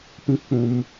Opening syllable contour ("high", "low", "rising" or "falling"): high